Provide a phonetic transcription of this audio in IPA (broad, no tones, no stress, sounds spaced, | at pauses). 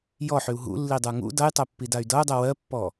j ɔ ħ y u̯ ɦ ṵ lː i dˤ ə˞ ŋ ṵ d ʌ j tˤ ɜ pː i d a y̯ d ʌ u̯ dˤ ɜ w ɜ pː ɔ